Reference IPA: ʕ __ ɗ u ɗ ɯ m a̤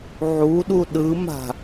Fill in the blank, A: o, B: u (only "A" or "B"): B